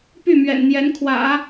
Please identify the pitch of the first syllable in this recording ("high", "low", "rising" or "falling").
falling